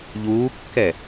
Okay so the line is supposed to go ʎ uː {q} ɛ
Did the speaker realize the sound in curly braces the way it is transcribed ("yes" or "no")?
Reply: no